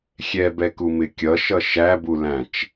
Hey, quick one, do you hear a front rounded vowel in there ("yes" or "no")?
no